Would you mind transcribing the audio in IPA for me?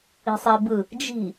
i̤sˤebɯ | d͡ʒi̤

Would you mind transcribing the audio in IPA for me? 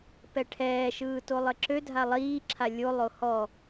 pɛʈʰɛː ʃɯːtolˠɘǁø dʱalˠiː ǁʰalʲo lˠohɔ

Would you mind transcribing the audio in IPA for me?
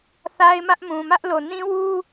θa˦ɪ̯mä˦ʔmũ˨ mä˦ʔlo˨ nĩ˦wu˦

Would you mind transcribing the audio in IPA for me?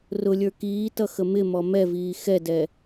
rʊlʲə˞ kiːtʌxə mɪmɔ mɛviː xɛdɛ

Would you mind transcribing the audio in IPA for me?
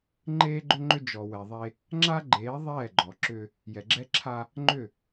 ŋ͡ǃeː˦ɡ͡ǃʏ˦ŋ͡ǃʏ˦ d͡ʒɔ˨wɛ˨ðˤe˦ | ŋ͡ǁa˦ɡ͡ǃeː˨˦ ðˤɛː˦˨ɡ͡ǃɔ˨ ǁʏ˦ | jɛ˨ɡ͡ǁɛ˦ǁʰa˦ | ŋ͡ǃʏ˦˨

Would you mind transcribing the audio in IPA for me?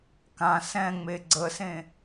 kã sɛ̃ŋ͡me ɡ͡ǀəsẽ

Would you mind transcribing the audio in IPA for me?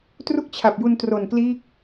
tru˥˩k̚t͡ɕʰa˨˩p̚ju˧n tro˨˩nkliː˦˥k̚

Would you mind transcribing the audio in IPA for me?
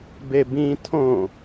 bebĩ tʰõ

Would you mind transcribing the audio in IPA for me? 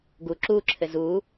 ɡu ǁuǁʰɘ zu

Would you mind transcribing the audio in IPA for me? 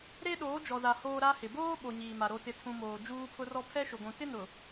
ɾe˦ɗoː˨˦d͡ʒɔ˨za˨ hoː˦ɾa˦ hɪ˨ boː˦ ɓo˨ ɲiː˨ma˨ ɾo˨tɪ˨tʰũ˨ moː˨ d͡ʒuː˦pʰʊ˦rɔ˦ pʰɛ˦ʃʊ˨ɡʷũ˨ tɪ˦nʊ˨

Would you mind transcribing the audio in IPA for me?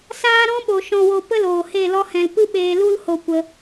saː˦ɾɔ̃˦ɓo˨ ʃɔ̃˨wo˨pə˧ loː˨he˦˨lɔ˦hɛ̃˧l pɨ˦ɓeː˧lu˦l ho˦˨kʷə˧

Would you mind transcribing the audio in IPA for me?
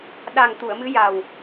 ɗa˨˩ŋ t̪u˨˩˨ə̯mɨ˧˥ ja˨˩w

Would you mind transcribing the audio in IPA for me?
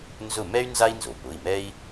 nzʊ˦˨ mɛ˥y̯ nza˥i̯nzo˩pʊ˩˧˩i̯mɛ˥i̯

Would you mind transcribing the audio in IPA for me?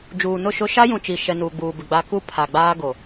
d͡ʒuː˨nʊ˦˨ʃʊ˦ ʃa˦jũ˨ t͡ʃi˨ʃɛ˨ nuː˨ɡ͡buː˨bɪ˨ ɡ͡ba˨ ku˦ pʰa˨ɡ͡baː˦ ɡo˨

